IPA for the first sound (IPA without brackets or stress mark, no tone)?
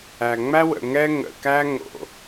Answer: æ